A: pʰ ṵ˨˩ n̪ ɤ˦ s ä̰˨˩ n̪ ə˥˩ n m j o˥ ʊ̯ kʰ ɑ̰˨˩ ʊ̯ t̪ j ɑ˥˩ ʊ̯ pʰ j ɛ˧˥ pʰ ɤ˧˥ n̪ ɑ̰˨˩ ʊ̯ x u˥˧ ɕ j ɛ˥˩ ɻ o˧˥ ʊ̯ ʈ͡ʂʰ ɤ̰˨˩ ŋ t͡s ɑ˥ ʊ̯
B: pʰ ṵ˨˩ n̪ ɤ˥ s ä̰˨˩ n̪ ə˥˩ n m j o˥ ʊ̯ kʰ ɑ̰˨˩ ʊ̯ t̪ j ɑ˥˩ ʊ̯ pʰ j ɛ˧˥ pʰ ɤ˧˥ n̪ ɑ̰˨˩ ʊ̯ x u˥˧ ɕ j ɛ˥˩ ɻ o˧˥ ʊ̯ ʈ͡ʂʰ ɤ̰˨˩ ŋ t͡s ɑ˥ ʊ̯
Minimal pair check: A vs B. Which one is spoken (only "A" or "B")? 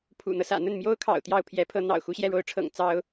A